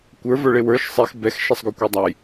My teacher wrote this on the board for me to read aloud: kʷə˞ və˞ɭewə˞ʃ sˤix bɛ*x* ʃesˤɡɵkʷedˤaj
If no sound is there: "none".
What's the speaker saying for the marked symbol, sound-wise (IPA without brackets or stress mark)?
x